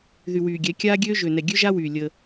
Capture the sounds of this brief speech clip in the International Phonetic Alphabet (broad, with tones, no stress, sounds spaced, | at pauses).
ð y˨ w yː˨ ɡʲ ɛ˨˦ kʲ aː˦ ɡʲ øː˦ ʒ ø˨ n ɛ˨ ɡʲ ø˦ ʒ a˦ w yː˨ lʲ ə˦